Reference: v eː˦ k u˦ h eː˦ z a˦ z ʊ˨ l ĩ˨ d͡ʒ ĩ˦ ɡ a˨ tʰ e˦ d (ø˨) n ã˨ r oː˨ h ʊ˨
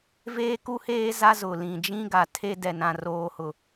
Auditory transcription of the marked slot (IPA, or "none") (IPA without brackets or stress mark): ɛ˨